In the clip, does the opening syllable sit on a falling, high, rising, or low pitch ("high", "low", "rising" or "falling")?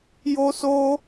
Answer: high